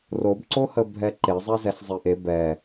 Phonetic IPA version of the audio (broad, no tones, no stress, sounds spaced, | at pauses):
r o b ǀ o h ə bʱ ɛ ǃ e zˤ e z ɛ ɬ zˤ i ʔ e b ɛ